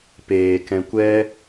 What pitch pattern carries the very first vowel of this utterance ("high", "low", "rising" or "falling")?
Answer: low